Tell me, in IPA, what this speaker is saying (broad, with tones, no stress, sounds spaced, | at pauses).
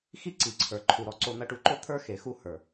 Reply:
x i˦ ǀ i˨ ǀʰ ə˞˨ ǃʰ u˨ ɾ ɔ˧ ǀ o˧ n̪ ɐ˧ ʈ u˧ ǃ o˦ t̪ʰ ə˞˦ x e˨˦ x u˦ h ə˞˨